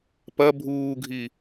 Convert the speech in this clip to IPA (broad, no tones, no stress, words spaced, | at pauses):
pɐ bʱuːɡʱi